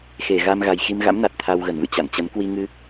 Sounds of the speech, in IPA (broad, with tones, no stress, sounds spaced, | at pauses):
x e˧˩ ɣ a˧ m ɣ a˨˩ j x i˧ m ɣ a̰˧˥ m n a˨˩ t̚ t̪ʰ a˧ w ɣ ə˧˩ n v ɨ̰˧˨ t͡ɕ a̰˧˨ n t͡ɕ ə˨˦ n k w i˧ ŋ ɨ˧